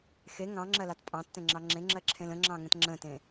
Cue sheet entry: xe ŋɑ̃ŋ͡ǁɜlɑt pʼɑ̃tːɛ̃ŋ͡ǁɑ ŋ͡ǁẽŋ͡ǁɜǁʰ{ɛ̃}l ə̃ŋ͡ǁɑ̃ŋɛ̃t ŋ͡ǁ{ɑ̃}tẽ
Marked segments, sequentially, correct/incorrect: incorrect: ẽ, incorrect: ə̃

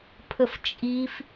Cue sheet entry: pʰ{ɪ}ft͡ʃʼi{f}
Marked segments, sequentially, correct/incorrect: incorrect: ə, correct

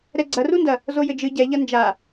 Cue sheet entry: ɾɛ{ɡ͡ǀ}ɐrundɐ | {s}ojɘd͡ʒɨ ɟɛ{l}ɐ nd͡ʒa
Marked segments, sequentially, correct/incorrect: correct, incorrect: z, incorrect: ʎ

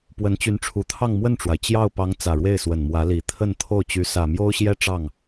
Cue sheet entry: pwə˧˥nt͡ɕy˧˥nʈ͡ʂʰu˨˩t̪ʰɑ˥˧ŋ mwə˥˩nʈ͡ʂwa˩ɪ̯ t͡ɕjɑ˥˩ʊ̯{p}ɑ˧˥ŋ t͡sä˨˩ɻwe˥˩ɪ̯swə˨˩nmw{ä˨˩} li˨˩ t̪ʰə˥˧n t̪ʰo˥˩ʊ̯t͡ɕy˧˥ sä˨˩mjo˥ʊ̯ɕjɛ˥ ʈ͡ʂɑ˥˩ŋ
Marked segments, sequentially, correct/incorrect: correct, incorrect: ä˧˥

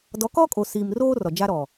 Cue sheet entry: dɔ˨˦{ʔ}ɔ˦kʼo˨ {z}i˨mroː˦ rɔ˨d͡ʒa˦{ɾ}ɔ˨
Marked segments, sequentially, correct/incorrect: incorrect: k, incorrect: s, correct

